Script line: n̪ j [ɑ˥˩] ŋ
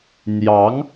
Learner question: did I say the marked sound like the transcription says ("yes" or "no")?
no